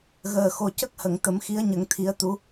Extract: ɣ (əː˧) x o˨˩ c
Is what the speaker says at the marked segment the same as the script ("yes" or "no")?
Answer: no